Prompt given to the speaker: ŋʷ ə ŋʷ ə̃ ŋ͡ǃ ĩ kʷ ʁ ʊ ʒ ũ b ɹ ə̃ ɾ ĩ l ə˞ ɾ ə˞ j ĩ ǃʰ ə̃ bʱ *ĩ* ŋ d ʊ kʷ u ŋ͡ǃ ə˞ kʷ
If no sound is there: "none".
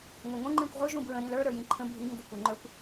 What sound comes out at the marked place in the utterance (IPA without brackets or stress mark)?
i